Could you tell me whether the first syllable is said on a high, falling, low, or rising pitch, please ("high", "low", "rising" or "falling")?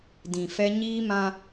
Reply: low